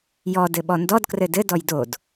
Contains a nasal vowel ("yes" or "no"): no